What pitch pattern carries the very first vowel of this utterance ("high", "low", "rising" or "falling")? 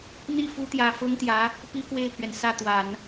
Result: falling